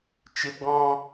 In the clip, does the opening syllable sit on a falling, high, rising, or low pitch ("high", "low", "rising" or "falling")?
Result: high